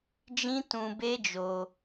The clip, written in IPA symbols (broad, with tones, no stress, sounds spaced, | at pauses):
d͡ʒ ĩ˦ t ũ˧ b e˦ d͡ʒ o˧